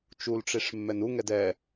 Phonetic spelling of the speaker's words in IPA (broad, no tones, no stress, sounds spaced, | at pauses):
t͡ʃ u l ʈ͡ʂ i ʂ mː ɛ n u ŋ ɛ d ɛ